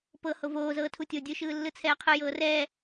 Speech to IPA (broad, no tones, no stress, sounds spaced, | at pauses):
p ɤ h o v oː z ɤː tʰ u tʲ o dʲ ɯ ʃ ɯː lː ɯ t͡sʰ ɛː qʰ ɯ j ɤː r ɛː